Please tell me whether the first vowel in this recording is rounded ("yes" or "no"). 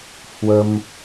no